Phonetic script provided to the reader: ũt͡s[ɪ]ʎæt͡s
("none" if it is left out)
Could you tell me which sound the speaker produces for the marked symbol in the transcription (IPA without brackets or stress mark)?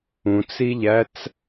i